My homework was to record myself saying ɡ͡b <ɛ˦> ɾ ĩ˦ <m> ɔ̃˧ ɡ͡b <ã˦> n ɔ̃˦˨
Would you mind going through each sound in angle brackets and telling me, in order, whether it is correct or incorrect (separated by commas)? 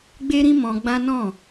incorrect, correct, correct